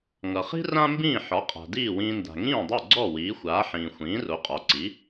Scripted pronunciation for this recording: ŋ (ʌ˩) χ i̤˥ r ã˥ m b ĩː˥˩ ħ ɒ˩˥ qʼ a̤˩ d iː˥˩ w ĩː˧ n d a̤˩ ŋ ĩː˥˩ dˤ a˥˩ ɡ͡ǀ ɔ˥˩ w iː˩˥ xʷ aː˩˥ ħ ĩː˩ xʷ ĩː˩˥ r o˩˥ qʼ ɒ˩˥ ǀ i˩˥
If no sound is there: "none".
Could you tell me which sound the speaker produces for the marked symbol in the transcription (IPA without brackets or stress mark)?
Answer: ʌ˩